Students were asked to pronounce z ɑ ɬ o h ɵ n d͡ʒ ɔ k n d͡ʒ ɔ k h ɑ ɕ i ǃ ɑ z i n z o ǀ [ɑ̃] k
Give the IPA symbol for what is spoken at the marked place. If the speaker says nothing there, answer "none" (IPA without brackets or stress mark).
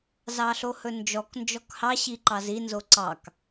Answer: ɑ